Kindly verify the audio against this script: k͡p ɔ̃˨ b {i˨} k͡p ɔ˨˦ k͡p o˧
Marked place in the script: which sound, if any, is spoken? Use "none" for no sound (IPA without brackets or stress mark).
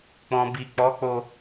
i˨